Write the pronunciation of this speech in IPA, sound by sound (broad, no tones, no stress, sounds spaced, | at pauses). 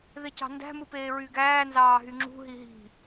ð e c ɑ̤ n d æ̤ m ɯ p eː ɹ y ɡ æː n z ɑː ɦ y ŋ͡ǁ ṳ ɦ i ɦ i̤